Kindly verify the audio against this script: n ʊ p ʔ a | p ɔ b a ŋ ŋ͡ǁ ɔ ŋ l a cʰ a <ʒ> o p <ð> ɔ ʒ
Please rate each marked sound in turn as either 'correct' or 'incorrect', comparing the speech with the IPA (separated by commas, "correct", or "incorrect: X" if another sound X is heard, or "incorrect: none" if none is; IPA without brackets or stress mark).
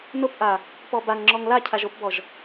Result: correct, incorrect: b